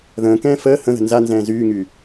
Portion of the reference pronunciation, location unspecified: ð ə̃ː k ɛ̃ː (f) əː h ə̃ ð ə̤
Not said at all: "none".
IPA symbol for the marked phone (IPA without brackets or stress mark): f